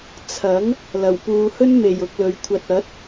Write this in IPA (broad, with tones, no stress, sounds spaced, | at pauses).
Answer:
t͡sʰ ɐ˨˥ ŋ | l ɐ˨˩ w p uː˨ h ɵ˥ n m e˨˩ j ʊ˧ k̚ l ɵ˨˧ ɥ kʷʰ ɐ˧ t̚ ɐ˨˥ t̚